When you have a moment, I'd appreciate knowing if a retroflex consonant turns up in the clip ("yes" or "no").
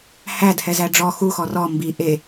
yes